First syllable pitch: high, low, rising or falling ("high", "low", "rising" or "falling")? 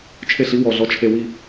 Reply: falling